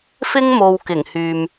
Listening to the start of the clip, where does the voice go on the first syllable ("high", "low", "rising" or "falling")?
high